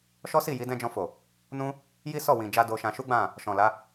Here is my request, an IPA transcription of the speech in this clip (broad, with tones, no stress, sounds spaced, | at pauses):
ʃ ɔ˦ s i˦˨ j i˨˦ d ɛ̃˦ d͡ʒ ɔ̃˧ f o˨ | n ũ˦ | j i˦ s ɔ˦˨ w ĩ˨ d͡ʒ a˧ d o˧ ʃ ã˧ ʃ u˦ ɡ͡b ã˦˨ | ʃ ɔ̃˨ l a˨˦